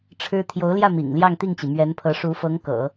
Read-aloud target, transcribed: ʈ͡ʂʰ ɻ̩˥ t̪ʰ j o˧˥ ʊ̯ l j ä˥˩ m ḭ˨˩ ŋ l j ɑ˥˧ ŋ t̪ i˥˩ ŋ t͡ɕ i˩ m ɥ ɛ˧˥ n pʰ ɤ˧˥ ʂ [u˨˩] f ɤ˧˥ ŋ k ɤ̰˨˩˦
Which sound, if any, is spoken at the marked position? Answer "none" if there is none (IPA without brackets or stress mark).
u˧˥